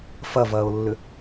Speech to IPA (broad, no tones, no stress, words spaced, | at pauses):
fɐvɐːʊ̯lːʏ